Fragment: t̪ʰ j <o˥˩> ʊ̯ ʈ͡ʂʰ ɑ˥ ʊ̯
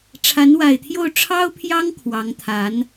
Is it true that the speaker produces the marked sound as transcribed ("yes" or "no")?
yes